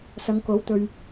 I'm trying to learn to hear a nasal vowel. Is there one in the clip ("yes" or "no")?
no